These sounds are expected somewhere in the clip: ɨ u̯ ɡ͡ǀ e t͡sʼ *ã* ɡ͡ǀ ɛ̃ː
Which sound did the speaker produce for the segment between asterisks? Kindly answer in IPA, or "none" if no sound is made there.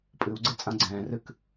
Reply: ã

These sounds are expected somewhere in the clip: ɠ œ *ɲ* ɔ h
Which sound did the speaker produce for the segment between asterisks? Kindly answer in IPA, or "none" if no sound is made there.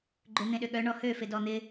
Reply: ɳ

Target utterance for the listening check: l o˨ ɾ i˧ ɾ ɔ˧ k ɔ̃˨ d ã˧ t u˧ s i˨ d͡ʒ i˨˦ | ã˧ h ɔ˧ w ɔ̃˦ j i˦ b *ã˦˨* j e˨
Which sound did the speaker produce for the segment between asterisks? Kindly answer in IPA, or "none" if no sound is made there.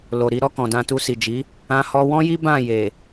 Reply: ã˦˨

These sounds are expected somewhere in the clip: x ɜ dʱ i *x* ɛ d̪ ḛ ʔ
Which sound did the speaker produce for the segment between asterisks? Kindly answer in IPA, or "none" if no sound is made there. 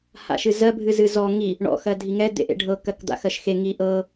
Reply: ŋ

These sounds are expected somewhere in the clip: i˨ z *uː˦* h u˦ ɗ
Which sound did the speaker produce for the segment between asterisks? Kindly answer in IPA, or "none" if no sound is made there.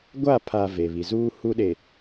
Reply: uː˦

